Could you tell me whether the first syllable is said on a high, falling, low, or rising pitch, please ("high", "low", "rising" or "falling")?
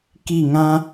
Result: falling